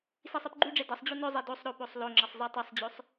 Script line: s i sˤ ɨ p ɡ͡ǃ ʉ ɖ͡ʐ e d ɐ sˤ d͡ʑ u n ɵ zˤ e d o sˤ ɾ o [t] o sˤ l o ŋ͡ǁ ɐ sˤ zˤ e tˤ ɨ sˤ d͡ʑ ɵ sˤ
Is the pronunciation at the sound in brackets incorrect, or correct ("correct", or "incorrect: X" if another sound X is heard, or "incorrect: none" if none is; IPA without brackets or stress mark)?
incorrect: p